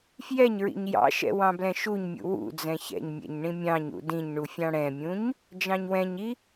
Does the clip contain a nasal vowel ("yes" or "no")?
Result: yes